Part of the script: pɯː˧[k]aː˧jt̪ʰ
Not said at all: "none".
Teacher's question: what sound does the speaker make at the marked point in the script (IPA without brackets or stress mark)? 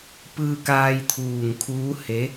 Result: k